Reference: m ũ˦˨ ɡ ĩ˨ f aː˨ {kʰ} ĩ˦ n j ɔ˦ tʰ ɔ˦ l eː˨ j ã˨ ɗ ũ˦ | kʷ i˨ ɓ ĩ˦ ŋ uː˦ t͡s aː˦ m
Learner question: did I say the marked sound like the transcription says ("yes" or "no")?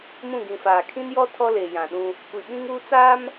yes